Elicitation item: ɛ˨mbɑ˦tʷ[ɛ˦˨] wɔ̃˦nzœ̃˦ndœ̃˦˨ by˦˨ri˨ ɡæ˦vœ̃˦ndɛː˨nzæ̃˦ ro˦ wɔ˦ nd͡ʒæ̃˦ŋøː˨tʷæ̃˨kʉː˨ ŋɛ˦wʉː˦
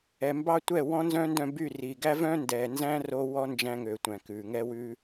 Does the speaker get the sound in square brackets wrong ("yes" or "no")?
no